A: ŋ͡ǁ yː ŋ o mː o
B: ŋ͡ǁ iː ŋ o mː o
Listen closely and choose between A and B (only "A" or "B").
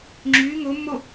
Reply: A